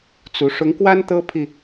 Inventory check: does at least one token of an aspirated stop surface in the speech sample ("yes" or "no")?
yes